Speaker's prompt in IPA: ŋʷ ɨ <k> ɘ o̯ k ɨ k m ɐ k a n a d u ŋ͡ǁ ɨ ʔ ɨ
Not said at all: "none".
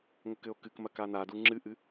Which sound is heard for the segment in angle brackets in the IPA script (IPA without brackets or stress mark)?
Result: k